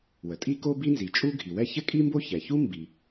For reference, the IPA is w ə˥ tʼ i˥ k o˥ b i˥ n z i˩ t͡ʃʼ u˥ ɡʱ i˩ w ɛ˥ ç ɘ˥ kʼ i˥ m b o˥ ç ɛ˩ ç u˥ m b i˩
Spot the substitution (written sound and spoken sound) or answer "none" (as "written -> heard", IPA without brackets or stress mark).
ə˥ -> ə˩